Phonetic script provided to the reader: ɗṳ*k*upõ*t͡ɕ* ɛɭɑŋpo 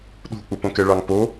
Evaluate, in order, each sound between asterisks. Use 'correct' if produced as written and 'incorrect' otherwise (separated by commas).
incorrect, incorrect